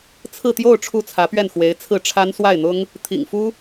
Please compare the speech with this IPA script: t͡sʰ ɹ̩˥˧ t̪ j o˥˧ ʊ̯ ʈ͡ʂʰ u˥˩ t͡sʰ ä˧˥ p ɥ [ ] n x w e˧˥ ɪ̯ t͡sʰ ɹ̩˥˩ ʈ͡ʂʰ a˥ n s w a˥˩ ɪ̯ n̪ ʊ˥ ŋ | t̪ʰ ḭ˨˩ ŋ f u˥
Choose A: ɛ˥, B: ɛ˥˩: B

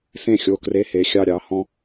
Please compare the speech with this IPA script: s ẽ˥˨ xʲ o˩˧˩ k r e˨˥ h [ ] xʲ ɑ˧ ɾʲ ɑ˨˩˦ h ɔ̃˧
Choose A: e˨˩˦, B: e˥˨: A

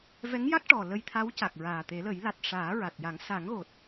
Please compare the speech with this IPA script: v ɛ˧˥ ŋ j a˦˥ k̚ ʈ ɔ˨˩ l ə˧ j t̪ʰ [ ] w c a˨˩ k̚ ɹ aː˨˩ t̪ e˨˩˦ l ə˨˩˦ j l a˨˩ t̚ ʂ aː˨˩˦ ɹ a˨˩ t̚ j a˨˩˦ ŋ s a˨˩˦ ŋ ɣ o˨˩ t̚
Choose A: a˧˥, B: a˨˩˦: A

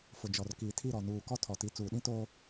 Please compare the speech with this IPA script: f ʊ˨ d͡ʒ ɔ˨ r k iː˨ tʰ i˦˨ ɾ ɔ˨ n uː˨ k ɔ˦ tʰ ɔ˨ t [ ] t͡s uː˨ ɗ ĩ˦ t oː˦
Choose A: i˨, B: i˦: A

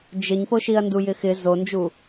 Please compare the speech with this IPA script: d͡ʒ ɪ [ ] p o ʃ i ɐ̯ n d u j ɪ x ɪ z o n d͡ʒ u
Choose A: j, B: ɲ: B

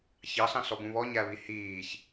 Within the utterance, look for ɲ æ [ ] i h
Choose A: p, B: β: B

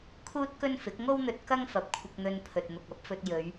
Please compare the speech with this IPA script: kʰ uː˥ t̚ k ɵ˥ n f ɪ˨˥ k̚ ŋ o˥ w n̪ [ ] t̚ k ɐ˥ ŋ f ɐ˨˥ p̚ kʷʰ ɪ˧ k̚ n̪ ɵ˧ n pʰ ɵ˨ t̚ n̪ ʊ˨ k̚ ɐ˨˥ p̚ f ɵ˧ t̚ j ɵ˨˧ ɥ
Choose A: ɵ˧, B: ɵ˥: A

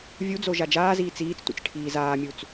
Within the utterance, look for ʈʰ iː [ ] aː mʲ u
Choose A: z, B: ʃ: A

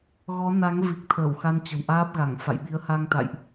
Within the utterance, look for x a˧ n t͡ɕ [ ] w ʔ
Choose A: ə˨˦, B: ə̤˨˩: B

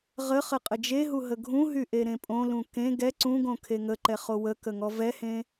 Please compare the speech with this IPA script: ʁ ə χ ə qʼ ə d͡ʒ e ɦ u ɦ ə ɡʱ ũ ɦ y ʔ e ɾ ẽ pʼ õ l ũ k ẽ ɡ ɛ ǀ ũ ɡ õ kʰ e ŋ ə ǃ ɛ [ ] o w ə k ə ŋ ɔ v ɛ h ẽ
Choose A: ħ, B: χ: B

